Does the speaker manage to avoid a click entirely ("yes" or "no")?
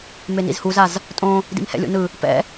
yes